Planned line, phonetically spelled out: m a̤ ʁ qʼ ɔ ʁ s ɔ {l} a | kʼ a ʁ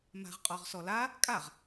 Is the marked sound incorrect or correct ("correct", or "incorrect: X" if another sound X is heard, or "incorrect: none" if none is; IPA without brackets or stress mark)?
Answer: correct